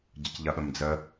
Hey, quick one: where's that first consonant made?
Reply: palate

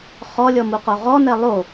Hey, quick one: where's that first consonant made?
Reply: uvula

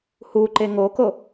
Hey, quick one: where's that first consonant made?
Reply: throat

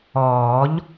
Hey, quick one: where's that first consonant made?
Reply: palate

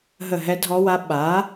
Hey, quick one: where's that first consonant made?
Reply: throat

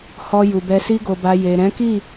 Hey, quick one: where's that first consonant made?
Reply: throat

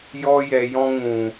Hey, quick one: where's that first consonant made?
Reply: palate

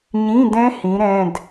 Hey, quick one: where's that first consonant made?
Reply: palate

